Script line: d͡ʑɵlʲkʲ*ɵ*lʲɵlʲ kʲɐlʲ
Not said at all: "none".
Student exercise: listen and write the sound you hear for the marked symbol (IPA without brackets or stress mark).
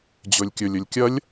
ɵ